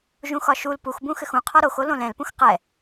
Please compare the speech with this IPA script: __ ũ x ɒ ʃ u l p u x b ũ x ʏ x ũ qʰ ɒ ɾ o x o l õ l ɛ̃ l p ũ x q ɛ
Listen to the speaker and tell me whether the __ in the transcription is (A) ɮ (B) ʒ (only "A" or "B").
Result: B